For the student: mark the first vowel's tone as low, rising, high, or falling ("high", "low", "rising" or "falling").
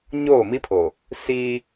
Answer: falling